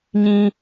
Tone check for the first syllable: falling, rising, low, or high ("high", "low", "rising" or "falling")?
high